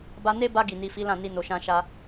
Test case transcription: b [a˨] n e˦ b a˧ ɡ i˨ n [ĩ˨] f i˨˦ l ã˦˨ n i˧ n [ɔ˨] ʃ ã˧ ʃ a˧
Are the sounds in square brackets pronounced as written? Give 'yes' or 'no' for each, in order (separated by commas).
no, no, no